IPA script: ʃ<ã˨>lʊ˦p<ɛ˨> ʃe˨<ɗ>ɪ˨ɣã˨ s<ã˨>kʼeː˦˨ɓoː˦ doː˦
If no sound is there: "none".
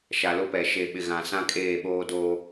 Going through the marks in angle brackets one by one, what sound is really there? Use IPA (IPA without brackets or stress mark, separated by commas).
a˨, ɛ˨, ɓ, ã˦